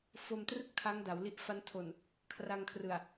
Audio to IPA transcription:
f o˧ m t r ɯ˥˩ k̚ tʰ a˦˥ ŋ d a˩˦ w l i˦˥ ʔ f a˦˥ n tʰ o˨˩ n | kʰ r a˧ ŋ kʰ r ɯ˨˩ a̯

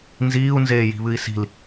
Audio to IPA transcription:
n z iː u̯ n z eː j i̤ β ɨ i̯ s i̤ l

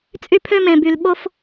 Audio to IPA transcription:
t͡sʼ y˦ pʰ ø˦ m ẽ˨ b y˨ l ɓ o˥ f

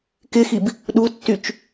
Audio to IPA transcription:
k ɪ x i b | ɗ u tː y t͡ʃ

